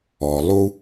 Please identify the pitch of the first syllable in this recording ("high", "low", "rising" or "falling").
low